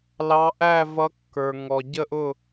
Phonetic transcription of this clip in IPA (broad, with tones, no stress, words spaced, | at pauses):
lɑ˧˥ ʔæ˥˧vʌ˧˥kːə˞˨ ŋɔ˨ ɟə˥˧ʔʊ˥˧